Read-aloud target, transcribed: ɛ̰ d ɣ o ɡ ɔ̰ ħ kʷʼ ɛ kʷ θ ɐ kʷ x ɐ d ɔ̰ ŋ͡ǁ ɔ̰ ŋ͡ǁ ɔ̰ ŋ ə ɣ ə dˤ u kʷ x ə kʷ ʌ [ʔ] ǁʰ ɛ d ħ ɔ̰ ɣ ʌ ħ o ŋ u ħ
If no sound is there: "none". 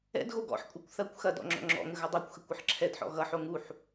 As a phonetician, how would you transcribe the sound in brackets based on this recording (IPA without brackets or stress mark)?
ħ